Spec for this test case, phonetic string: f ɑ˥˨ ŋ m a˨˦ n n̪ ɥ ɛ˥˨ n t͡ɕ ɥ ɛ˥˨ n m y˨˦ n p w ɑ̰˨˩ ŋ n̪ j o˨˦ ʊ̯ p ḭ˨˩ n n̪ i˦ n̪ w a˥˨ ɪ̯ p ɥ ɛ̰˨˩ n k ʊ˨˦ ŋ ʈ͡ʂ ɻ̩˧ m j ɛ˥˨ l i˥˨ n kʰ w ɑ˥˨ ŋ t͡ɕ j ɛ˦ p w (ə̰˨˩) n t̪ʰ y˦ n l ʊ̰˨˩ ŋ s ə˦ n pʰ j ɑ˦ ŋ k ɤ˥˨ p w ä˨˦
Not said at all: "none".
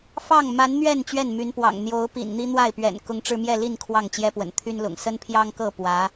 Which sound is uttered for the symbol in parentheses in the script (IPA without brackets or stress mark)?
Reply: ə̰˨˩